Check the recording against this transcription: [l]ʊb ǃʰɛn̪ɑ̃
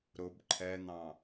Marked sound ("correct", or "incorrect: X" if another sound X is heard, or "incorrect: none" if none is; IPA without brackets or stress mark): incorrect: ɾ